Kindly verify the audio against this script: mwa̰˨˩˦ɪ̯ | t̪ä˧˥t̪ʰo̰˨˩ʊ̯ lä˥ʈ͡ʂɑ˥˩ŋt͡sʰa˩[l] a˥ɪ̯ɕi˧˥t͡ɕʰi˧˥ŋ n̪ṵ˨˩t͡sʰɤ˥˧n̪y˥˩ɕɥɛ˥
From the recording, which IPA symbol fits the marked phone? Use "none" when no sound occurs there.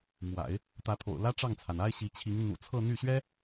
n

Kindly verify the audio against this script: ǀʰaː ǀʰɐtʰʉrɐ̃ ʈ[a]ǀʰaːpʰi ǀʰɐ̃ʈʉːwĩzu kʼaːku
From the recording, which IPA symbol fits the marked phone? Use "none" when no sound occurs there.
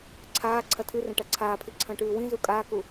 a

